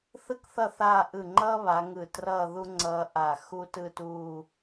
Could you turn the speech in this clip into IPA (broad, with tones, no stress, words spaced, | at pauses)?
θɯ˥kθʌ˥˧ θaː˥˧ ʔɯ˧˩ŋ͡ǃʌː˥βa˩˧ ŋɯ˧˩trʌː˥˧ ðu˥ŋ͡ǀʌː˧ ʔa˧˩xu˥tɯ˥˧tuː˥˧